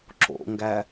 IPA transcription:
ǁ o̰ ŋ ɡ æ

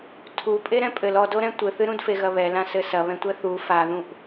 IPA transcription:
tʰ u pʼ e ɾ ɛ̃ pʼ ɘ l ɔ d o ɾ ɛ̃ tʷ ɘ θ ɨ ɾ ũ d f e ɣ ɐ β ɛ l ã s ɘ s ɐ β ɛ̃ tʷ ɛ θ u f a ð ũ ʔ

